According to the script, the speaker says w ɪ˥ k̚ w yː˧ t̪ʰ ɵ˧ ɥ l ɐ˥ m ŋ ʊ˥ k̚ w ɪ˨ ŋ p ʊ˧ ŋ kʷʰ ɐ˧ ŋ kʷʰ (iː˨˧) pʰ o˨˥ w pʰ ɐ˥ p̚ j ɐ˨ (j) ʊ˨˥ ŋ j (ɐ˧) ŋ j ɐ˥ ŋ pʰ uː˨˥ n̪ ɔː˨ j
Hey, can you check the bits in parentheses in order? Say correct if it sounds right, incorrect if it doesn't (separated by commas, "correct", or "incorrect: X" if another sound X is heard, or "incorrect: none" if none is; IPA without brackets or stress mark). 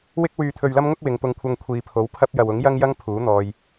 incorrect: iː˨, incorrect: w, incorrect: ɐ˥